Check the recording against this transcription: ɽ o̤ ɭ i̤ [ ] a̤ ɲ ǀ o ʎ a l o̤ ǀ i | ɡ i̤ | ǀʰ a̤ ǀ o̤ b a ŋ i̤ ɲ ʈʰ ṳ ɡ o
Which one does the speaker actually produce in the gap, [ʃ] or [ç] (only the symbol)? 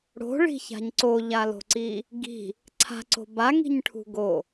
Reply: ç